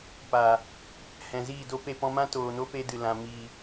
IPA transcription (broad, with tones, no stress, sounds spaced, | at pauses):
p aː˨ | h ɛ̃˨ z iː˦˨ d o˦ p e˧ p ɔ̃˧ m ã˦ t oː˨ n o˦ p e˧ d ɨ˨ l ã˨ m iː˨